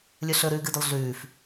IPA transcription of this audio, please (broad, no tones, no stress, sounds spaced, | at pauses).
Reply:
lʲ ɵ ɬ ɵ ɾ ʉː ɡ ɨ d ɵ lˠ ɮ ʉː f